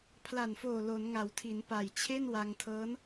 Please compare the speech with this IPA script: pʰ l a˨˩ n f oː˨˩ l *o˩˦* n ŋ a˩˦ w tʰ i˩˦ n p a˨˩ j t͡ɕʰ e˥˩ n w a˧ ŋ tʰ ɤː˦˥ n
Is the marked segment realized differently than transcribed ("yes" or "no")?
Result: no